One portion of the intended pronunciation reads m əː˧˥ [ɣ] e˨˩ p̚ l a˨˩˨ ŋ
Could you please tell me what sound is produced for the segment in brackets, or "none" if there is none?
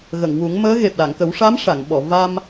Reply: ɣ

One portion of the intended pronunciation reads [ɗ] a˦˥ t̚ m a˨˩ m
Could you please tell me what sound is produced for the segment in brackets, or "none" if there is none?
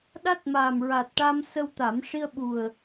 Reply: ɗ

